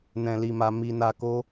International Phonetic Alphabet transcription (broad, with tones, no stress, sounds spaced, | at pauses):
n ɛ̃˧ l i˧ m a˧ m i˧ n a˧ k o˦